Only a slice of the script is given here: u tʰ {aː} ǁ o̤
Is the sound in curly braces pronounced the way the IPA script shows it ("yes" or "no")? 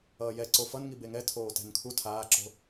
yes